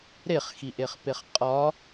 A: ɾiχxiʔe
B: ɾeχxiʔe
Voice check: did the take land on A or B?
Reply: B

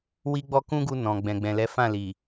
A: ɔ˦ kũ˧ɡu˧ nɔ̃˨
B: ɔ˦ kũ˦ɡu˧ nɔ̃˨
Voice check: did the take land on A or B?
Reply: B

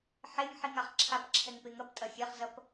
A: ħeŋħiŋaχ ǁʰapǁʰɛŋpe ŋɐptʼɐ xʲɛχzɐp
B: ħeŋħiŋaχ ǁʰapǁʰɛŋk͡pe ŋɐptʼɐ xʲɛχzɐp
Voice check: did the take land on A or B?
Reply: A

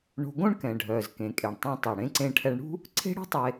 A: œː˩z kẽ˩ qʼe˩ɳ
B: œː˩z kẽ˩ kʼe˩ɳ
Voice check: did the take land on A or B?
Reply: B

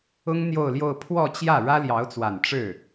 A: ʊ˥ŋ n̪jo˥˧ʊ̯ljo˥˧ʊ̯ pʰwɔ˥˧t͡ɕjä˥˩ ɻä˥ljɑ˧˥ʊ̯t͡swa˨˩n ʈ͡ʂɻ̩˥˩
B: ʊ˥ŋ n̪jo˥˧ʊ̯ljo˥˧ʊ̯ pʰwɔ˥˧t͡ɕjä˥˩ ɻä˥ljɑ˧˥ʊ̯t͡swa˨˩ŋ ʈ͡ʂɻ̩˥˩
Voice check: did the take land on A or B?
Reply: A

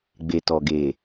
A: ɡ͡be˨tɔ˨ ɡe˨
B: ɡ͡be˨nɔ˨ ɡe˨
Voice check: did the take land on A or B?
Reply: A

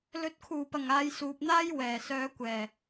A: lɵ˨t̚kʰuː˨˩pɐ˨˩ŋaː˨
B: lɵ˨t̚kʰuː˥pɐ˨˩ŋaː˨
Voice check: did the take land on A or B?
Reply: A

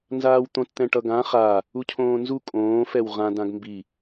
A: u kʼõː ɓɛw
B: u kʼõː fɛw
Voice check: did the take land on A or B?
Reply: B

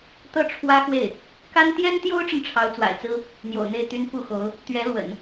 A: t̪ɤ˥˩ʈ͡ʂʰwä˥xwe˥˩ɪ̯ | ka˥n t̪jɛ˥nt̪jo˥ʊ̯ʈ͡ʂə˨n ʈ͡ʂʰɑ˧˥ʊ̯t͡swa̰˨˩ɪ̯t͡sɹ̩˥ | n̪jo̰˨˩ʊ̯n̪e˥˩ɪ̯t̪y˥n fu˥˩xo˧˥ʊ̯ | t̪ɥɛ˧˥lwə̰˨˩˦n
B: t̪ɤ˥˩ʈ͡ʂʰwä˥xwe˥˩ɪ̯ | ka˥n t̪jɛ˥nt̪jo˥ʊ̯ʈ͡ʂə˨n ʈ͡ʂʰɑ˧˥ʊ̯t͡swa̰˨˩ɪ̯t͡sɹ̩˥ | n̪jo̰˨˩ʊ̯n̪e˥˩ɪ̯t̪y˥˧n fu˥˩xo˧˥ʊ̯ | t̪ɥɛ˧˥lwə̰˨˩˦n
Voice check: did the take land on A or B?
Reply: A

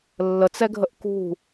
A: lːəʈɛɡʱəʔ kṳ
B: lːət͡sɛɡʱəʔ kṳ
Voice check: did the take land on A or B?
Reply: B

